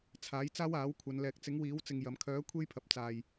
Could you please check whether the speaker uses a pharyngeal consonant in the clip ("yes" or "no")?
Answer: no